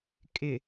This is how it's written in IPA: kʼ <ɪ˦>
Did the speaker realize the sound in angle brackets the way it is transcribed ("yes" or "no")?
no